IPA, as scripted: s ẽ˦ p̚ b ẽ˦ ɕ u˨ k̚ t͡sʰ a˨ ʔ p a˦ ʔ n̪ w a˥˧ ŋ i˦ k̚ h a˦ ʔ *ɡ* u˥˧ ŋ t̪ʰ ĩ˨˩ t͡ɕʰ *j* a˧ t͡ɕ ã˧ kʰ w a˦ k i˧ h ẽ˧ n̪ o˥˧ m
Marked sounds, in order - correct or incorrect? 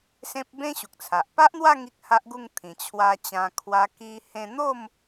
correct, incorrect: w

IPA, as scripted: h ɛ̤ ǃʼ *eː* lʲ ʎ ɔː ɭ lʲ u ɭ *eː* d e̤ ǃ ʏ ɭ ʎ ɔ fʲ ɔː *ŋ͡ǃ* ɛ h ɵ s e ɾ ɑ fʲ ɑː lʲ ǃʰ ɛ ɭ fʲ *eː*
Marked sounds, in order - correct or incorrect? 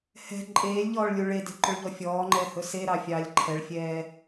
correct, incorrect: e, correct, incorrect: ɛː

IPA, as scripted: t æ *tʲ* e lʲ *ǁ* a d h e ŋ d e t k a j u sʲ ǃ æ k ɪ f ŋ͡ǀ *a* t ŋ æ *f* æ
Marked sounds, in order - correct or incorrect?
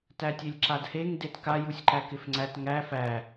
correct, correct, incorrect: æ, correct

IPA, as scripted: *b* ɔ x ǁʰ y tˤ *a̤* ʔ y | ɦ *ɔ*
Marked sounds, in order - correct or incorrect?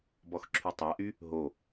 correct, incorrect: a, incorrect: o

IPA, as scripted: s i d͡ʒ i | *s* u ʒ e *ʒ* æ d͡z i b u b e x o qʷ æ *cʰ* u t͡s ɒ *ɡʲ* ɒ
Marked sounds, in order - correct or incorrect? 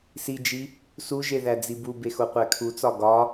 correct, incorrect: ð, incorrect: kʰ, incorrect: ɡ

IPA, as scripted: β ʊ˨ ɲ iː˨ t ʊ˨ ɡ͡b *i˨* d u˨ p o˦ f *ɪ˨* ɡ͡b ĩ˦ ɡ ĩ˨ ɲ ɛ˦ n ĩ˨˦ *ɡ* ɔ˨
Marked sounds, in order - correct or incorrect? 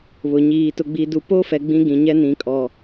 correct, incorrect: ɛ˨, incorrect: kʼ

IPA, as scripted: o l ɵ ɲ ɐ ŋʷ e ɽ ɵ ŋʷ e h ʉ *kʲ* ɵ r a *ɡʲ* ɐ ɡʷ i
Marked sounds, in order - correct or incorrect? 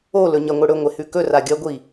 incorrect: k, correct

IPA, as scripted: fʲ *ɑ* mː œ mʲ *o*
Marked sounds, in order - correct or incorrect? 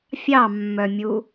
correct, incorrect: u

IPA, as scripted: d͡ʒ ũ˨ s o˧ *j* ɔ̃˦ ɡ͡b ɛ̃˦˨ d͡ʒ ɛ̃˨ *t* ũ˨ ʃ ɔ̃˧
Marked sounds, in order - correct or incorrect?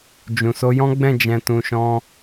correct, correct

